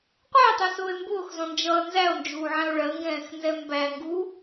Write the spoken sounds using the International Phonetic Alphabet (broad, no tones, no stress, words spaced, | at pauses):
qʷætˤɜsʊːe̯ mbʊːxzɔ̃nd͡ʒʌː nzæo̯nd͡ʒuːʕæ̃o̯ ɭɜŋɡɛ̃ːxnzɛ mbæŋɡu